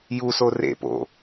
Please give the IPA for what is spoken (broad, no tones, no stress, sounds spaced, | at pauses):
j u s o r ḛ p o̰